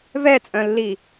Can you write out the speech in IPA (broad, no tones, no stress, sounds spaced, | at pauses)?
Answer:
v ɛ t͡sʼ œ̃ lː i